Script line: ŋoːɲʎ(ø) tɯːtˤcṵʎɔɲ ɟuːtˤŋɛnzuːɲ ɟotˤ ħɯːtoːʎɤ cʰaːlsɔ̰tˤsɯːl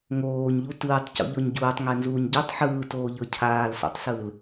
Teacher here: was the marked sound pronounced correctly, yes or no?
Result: no